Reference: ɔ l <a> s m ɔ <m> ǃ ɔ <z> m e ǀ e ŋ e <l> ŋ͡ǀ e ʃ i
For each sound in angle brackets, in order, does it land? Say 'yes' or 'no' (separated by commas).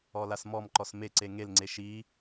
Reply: yes, yes, no, yes